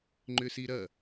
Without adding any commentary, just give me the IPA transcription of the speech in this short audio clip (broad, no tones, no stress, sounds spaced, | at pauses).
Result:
ŋ͡ǃ ʏ s i ɾ ɐ